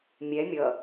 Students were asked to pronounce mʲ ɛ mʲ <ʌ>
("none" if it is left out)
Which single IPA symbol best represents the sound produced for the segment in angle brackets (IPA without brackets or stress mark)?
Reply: ʌ